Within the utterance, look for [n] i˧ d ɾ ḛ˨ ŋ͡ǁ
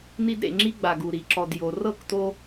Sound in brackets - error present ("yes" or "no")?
no